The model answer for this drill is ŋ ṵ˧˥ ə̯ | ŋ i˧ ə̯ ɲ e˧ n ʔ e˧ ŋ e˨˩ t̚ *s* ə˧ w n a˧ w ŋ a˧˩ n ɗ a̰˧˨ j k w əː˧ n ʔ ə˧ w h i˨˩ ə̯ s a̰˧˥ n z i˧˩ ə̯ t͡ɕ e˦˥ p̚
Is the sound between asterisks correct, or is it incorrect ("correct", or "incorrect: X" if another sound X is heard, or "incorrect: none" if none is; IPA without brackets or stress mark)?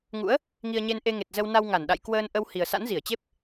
incorrect: z